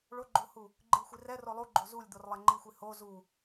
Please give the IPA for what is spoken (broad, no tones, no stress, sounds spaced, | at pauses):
ɭ o ɡ͡ǃ o h u | ɡ͡ǃ i ɭ xʷ i r ɛ r o lˠ u ɡ͡ǃ o z u lʲ d̪ o r lˠ ɛ ŋ͡ǃ i xʷ i h o z u